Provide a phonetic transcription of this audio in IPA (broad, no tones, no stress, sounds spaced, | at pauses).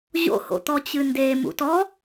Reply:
ʑ o̰ h o̰ t̪ ɔ t͡ɕ ɨ n d e m ṵ t ɔ